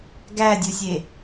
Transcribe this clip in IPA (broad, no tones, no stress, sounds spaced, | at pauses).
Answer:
ɡ æ dʲ u sʲ e